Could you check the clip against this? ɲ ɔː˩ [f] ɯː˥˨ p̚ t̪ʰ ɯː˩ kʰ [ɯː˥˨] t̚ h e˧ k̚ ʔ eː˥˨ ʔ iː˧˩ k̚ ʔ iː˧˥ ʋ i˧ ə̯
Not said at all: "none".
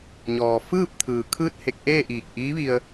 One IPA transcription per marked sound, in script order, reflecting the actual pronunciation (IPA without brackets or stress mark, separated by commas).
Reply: f, ɯː˥˨